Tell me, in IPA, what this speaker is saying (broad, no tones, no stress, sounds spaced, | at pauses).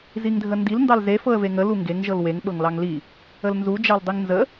z i ŋ dʱ ə n d i l n d ɑ l z e f ɤ ə̯ v e ŋ ə l u ŋ ɡ e ŋ ʒ ɤ l w e ŋ ɓ ɤ ŋ l ɑ ŋ l i | ə l n z u d͡ʒ ɑ l dˤ i ŋ n z ə